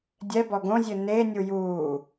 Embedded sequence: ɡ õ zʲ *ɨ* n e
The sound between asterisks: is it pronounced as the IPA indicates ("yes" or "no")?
yes